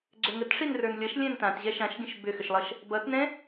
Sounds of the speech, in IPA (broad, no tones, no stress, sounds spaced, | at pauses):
ɡ͡ǀ ʏ ŋ ə t ʂ i n r ə˞ n lʲ ʌ ʃ lʲ ɛ̃ n t ã t ʑ ɛ ʃ ã ʃ ɡʲ ə̃ ʃ b ʏ x ʏ ʃ lˠ ʌ ʃ | b ʌ t n ɛ̃